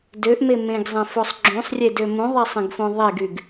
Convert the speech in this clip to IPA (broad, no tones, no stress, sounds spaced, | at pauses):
d ø ʔ m e m ẽ ɡ zˤ ẽ f o sˤ ɡ͡ǁ ũ sˤ rʲ e d ø m ũ ðˤ e sˤ ẽ ɡ f õ ðˤ e ɡ y ɡ